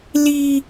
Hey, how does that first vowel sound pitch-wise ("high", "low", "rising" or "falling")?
high